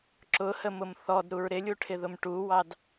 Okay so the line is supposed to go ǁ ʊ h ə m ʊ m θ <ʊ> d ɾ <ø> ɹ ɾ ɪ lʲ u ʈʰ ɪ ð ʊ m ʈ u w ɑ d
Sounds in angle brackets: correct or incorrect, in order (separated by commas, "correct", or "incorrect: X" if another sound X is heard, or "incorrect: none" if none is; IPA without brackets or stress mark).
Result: incorrect: ɔ, incorrect: u